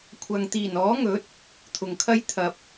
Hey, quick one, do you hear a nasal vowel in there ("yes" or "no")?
no